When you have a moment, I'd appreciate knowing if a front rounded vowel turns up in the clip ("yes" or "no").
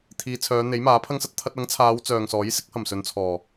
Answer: yes